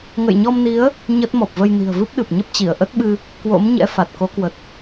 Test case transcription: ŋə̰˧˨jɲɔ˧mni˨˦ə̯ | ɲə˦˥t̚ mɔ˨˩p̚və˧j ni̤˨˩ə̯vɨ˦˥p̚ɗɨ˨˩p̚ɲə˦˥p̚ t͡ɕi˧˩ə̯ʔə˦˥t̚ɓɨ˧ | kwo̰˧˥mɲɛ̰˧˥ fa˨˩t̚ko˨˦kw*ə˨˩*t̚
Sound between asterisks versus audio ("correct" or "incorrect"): correct